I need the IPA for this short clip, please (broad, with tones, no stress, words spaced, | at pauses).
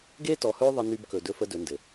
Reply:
ɡeː˦tɔ˨hɵː˦ ðˤə˦ny˦bkɵ˨ dɵ˦fə˦ dɵ˨˦ndɘ˨